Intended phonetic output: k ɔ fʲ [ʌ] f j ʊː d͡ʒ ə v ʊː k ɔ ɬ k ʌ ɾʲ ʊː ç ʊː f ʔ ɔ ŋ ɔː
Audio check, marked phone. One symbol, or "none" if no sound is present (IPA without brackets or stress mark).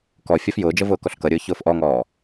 ɔ